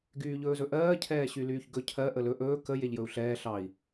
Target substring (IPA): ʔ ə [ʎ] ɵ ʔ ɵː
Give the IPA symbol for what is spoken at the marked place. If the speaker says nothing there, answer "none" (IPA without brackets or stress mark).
l